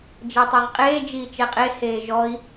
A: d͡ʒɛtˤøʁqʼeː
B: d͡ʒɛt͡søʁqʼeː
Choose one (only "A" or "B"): A